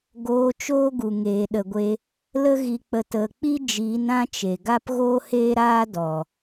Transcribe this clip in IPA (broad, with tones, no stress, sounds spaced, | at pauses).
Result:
ɡ oː˧ t͡ʃ oː˦ ɡ u˨ ŋ eː˨ ɗ ə˨ ɡʷ e˧ | l ə˦ ɣ i˧ k͡p ə˧ t ə˧ k͡p i˦ d͡ʒ iː˨˦ n ã˦ t͡ʃ e˨ ɡ a˦ p ɣ oː˦ h eː˦ ɾ aː˦ d ɔ˨